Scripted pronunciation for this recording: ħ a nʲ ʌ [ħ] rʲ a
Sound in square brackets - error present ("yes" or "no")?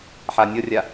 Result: yes